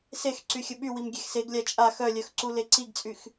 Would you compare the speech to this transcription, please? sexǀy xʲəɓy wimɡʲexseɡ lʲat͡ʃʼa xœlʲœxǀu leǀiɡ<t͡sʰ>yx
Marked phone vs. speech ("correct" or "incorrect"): incorrect